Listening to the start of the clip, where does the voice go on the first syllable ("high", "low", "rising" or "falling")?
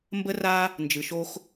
high